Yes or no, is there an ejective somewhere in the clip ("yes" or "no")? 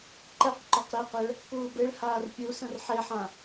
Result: no